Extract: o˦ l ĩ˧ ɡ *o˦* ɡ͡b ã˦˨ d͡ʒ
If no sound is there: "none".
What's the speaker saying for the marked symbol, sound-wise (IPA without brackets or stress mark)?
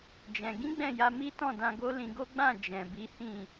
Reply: o˦